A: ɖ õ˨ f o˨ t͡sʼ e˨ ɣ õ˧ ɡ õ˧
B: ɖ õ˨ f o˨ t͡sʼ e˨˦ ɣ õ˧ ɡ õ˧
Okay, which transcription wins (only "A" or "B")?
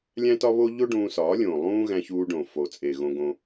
A